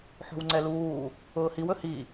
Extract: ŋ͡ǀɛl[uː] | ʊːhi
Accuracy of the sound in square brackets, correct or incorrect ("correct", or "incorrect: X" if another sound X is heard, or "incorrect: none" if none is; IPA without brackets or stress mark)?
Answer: correct